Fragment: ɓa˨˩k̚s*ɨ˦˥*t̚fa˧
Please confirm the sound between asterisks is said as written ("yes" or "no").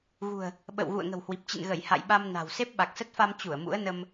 no